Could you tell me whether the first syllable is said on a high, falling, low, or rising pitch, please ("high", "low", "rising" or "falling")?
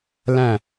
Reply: falling